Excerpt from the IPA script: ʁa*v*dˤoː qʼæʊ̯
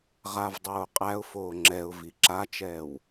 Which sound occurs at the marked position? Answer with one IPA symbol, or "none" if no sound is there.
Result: v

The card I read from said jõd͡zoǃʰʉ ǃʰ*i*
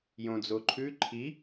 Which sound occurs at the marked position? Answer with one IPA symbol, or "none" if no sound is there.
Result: i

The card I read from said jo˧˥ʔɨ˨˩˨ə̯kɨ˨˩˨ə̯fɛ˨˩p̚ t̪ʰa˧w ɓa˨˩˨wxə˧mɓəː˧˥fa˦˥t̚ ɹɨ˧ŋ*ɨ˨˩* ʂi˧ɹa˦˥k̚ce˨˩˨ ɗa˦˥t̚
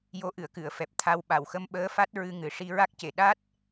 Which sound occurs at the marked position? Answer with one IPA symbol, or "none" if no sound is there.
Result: ɨ˨˩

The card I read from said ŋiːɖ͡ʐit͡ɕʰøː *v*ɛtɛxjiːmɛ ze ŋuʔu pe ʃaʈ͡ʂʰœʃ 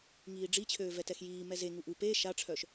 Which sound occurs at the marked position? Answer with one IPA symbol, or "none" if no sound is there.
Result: v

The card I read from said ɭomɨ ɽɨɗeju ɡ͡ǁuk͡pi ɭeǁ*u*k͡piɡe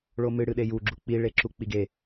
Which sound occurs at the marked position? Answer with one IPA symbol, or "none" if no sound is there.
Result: u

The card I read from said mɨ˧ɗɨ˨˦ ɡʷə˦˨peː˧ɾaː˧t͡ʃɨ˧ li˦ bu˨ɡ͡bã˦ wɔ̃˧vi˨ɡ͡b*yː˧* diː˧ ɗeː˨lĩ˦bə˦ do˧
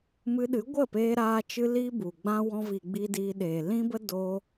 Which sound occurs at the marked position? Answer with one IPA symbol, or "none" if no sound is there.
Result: iː˧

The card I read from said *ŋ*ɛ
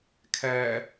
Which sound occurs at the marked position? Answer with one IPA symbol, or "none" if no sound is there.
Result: kʰ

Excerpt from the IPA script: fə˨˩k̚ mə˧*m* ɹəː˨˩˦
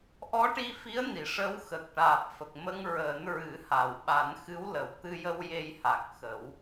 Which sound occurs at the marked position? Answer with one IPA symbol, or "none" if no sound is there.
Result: ŋ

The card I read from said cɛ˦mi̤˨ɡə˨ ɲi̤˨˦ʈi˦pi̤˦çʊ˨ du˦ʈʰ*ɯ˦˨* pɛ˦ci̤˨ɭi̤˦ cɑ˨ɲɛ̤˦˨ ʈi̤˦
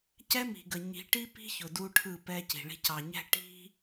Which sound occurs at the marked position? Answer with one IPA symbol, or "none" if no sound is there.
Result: ɯ˦˨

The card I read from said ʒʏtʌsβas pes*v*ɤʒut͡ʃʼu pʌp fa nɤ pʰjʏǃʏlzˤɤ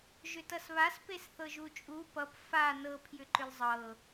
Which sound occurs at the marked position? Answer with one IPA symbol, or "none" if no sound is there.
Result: θ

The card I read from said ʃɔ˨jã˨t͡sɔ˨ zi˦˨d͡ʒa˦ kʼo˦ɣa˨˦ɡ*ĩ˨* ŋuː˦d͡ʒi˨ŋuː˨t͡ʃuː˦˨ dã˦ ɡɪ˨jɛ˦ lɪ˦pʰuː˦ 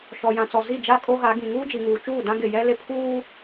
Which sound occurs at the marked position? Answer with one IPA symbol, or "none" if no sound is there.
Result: ĩ˨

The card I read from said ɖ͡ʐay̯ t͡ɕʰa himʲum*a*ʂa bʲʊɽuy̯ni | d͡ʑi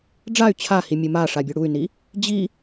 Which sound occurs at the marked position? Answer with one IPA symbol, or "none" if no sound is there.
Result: a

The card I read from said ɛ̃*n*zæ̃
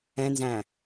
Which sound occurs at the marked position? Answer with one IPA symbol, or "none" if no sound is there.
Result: n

